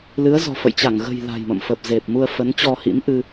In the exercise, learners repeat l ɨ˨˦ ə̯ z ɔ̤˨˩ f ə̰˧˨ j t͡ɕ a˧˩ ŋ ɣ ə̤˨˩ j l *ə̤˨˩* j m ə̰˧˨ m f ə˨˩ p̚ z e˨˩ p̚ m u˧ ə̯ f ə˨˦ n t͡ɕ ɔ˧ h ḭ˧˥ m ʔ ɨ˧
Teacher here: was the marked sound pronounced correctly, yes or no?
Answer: no